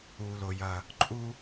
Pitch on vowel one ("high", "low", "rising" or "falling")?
low